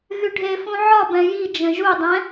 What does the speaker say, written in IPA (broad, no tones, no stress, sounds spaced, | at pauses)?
ɣ y ɖʱ e f ũ ʕ ɒ b ɛ̃ j i d͡ʒ ə̃ ʒ u dˤ ɛ̃